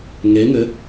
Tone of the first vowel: rising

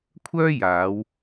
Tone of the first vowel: high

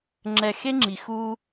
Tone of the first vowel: high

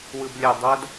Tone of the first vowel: low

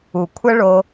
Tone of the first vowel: low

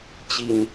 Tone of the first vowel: falling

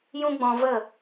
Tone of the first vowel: high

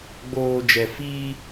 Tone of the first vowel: low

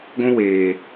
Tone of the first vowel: high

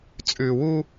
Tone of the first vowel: low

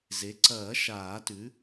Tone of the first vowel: rising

